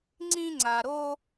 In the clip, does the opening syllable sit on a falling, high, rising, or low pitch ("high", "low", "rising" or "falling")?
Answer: high